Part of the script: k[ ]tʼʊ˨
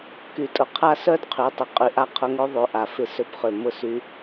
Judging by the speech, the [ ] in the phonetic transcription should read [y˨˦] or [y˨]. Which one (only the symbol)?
y˨